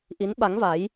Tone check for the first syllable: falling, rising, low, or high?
rising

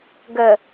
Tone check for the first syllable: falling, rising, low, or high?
low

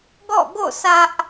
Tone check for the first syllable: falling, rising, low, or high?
falling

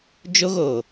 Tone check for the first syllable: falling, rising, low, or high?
high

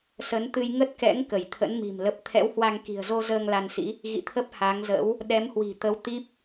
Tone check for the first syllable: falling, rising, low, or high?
rising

